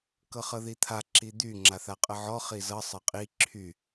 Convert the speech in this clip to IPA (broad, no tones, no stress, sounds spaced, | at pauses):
k ɤ χ ɤ ð i t̪ʰ a ǁ i d̪ y ŋ͡ǁ a θ a qʼ ə ʕ ɔ χ i z ɤ sˤ ɤ qʼ i ǁʰ y